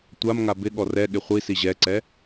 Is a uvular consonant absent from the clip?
no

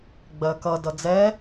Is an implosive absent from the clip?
yes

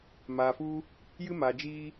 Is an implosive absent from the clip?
yes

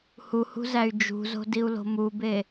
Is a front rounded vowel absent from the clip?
no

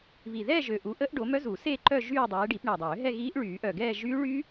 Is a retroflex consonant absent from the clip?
no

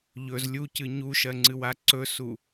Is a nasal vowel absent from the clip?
yes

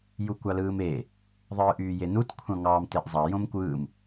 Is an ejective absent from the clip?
yes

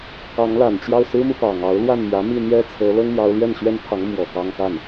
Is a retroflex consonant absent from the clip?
yes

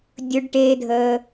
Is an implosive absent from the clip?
yes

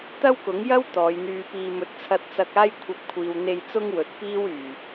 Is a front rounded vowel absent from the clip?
no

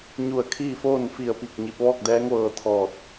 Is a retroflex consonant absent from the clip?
yes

